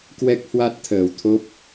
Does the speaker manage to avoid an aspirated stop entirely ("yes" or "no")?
no